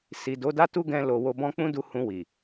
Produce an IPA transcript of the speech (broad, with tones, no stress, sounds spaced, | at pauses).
s i˨ d o˨˦ d a˦ t u˦ ɡ ɛ̃˧ l o˨ w o˧ b ɔ̃˦ k͡p ũ˦ d u˧ h ũ˧ w i˨